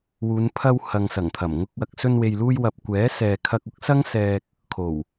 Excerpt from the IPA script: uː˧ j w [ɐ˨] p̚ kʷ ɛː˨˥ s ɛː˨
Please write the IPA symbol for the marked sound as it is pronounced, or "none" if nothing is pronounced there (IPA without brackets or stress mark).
ɐ˨